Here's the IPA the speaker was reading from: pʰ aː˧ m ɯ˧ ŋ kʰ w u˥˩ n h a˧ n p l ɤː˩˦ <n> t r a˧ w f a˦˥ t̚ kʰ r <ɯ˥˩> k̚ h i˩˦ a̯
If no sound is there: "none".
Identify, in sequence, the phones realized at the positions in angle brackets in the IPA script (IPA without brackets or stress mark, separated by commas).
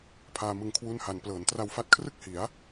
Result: n, ɯ˥˩